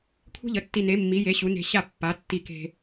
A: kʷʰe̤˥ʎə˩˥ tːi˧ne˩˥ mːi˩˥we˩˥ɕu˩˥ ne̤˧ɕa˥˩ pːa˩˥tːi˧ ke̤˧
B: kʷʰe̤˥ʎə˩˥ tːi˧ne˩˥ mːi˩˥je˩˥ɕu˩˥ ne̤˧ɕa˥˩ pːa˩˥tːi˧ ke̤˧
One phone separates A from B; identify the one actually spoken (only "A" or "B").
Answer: B